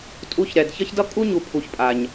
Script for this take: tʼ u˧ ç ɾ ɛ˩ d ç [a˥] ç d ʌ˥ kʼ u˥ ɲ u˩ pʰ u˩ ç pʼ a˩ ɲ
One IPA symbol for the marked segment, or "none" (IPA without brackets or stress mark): ʌ˥